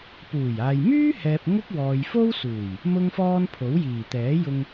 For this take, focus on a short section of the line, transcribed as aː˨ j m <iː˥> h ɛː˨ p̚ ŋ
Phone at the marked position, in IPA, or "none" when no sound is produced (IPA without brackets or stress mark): yː˥